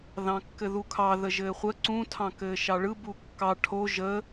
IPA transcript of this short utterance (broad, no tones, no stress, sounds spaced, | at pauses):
ð ɑ̃ kː ɘ ð u kʰ ɑ ð ə ʒ ɘː χʷ ə ǀ ũ tʰ ɑ̃ k ɘː ʃ ɑ ɭ ɯ b u kː ɑ ʈʰ o ʒ ə